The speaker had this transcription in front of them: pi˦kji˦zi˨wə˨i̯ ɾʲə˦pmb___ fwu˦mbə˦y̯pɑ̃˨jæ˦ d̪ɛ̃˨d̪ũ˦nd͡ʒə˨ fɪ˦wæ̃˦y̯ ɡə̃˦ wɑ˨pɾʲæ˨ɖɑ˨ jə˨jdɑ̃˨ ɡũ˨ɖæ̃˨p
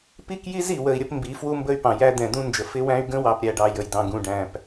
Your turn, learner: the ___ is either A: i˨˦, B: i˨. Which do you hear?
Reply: A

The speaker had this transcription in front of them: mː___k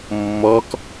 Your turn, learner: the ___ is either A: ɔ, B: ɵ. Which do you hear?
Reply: A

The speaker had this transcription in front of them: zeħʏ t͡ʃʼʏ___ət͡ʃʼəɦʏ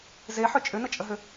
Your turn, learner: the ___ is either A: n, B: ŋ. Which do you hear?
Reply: A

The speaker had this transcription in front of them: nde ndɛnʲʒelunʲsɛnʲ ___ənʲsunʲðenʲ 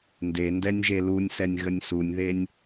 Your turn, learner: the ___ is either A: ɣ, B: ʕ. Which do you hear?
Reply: A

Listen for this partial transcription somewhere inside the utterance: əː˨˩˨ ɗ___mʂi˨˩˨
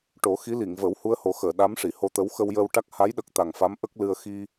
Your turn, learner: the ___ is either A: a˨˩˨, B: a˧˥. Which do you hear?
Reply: B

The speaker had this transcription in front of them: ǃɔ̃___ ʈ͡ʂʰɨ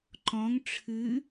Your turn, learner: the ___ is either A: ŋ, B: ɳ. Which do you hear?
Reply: A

